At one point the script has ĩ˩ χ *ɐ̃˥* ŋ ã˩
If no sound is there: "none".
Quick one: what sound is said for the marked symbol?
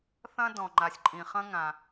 ɐ̃˥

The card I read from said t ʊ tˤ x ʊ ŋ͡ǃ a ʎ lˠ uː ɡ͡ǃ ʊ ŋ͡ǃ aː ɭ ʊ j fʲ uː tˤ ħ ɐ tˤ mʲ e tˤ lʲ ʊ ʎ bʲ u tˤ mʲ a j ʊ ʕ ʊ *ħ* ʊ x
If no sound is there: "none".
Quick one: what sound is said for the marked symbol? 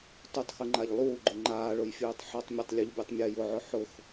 ħ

